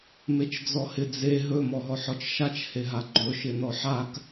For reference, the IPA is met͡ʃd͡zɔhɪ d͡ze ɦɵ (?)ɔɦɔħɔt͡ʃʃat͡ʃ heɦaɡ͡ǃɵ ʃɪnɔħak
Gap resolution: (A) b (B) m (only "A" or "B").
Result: B